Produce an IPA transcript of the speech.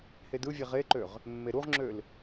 h e d ɯ vʲ e ʁ e ǃ ø ʁ | mː e ɾ u ʁ ŋ͡ǁ ø l

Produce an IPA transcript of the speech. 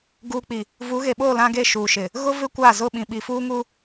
ɡ uː˨ k͡p i˨ | v u˨˦ ɣ e˨ ɓ oː˦˨ l ã˦ ɡ e˦˨ ʃ uː˨ ʃ ɪ˨ | ɣ ʊ˦ v ɪ˦ kʷ aː˦˨ z ʊ˦˨ ɓ ĩ˨ ɓ i˨ f uː˦ ŋ u˦

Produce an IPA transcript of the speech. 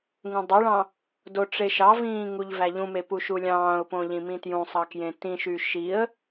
ŋ ũ dˤ e ɭ ɑ̃ | d o ʈ͡ʂ e ʃ ɑ v ĩː ŋ u ʎ v æ ʎ ũ m e p u ʃ u lʲ ɑ̃ː ʊ̯ p õ ʎ ĩ m ĩ t j ũ sˤ ɑ k j ẽ t ĩ ʃ y ʃ i ə̯

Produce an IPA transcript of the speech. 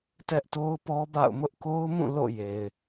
t ɛ˦ ʔ t o˦ ʊ̯ p ɔ˦ b a̰˦˨ ʊ̯ m ʊ˦ ʔ k o˦ ʊ̯ m ũ˦˨ l o̰˦˨ j e˨ ɪ̯

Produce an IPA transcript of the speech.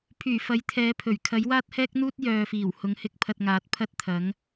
pʰ yː˨˩ f ɐ˨˥ j t̪ʰ ɛː˨˥ pʰ ɵ˨˩ ɥ kʰ ɐ˨˥ j w aː˥ t̚ h ɛː˥ k̚ n̪ uː˥ t̚ j œː˨ f iː˨˩ w h ʊ˨˥ ŋ h ɪ˧ k̚ pʰ ɐ˧ t̚ ŋ aː˨˥ t̚ pʰ ɐ˥ t̚ t̪ʰ ɐ˨˥ ŋ

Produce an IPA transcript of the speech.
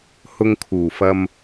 h ʊ˧ ŋ kʰ uː˨˩ f ɐ˧ m

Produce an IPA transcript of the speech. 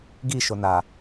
ɡ i ʃ o n a

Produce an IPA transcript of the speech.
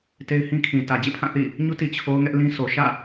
t e˦ ɪ̯ h ĩ˦ kʰ ĩ˨ t ä˨ d͡ʑ ḛ˦˨ pʰ ã˦˨ θ ḭ˦˨ | ɲ u˦ t i˨ t͡ɕʰ o˦ ʊ̯ ŋ ɛ˦ ʔ l ĩ˦ sʰ o˨ ʃ ä̰˦˨

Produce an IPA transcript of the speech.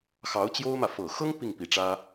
x ɑ˧˥ ʊ̯ t͡ɕ j o˥ ʊ̯ m ä˨ f ɤ˨˩ x ɤ˥ ŋ p i˥˩ ŋ p i˨˩ ʈ͡ʂ ä˥

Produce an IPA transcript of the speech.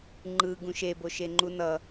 ŋ͡ǃ ɯ ɡ ũ ʃ e b o ʃ e ŋ͡ǃ u n ʌ

